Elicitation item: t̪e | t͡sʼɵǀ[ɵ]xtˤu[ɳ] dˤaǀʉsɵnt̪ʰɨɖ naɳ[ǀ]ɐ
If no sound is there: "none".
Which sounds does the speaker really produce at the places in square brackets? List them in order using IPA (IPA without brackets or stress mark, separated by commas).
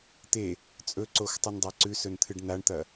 o, n, t̪